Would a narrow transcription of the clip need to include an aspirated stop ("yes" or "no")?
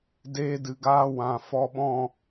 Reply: no